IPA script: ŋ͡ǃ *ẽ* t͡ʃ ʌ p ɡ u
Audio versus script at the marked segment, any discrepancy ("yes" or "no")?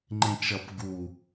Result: no